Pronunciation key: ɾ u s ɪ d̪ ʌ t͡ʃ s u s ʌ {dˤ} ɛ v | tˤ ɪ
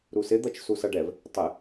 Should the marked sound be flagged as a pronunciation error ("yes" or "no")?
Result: yes